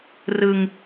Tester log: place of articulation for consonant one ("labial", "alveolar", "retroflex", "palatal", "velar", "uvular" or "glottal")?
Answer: alveolar